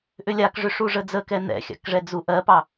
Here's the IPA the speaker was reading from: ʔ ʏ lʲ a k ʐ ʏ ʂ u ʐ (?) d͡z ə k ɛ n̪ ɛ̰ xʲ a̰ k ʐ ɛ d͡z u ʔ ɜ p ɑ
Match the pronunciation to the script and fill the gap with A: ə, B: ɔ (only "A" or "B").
A